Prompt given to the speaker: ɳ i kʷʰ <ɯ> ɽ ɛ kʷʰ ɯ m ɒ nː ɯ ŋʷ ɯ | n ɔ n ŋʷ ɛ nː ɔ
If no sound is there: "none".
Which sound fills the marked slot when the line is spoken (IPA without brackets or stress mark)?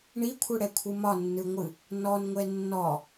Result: ɯ